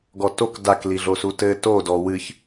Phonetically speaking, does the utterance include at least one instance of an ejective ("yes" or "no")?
no